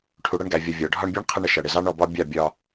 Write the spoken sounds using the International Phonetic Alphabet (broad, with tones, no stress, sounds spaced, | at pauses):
ʈʰ u˨ ɽ ʌ˧ ɳ ɡ æ˨ vʲ ʌ˨ vʲ ɒ˨ ɖʱ ɒ˧ ɳ bʲ æ˦ ɳ qʰ ə˧ ɳ ə˨ ʃ ʌ˨ ɽ ɪ˨ z ɑ˦ ɳ ɔ˧ b ɒ˦ bʲ ɑ˦˨ bʲ ɒ˧